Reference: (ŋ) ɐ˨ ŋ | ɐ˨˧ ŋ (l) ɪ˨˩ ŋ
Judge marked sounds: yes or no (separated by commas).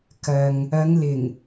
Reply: no, yes